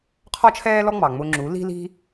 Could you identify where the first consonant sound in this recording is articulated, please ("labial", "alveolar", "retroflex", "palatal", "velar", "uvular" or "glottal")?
uvular